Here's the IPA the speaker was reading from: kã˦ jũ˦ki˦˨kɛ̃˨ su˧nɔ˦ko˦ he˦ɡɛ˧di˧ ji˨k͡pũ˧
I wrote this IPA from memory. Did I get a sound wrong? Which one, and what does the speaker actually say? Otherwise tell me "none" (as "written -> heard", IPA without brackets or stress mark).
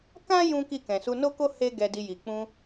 ɔ˦ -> o˦